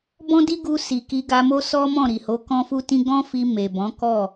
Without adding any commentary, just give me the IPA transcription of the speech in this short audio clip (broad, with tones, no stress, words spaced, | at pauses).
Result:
bɔ̃˦di˦ɡu˧ si˨ki˧ɡa˧mo˦ sɔ˦mɔ̃˦˨ ɾi˨ho˨˦ kɔ̃˦fu˦tĩ˦ ɡɔ̃˦fi˧ me˨bɔ̃˨˦ kɔ˦˨